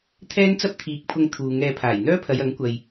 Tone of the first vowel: high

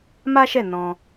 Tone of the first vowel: high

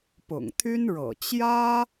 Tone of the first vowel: low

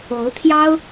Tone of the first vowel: rising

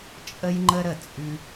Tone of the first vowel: high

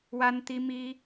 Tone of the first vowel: high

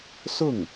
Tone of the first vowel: falling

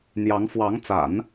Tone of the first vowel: rising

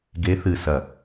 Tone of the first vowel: rising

